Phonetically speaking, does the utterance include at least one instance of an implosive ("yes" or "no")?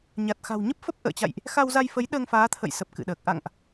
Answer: yes